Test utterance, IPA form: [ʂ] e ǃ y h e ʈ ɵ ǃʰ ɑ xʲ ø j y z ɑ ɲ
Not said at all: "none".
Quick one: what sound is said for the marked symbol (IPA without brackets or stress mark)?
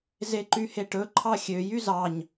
z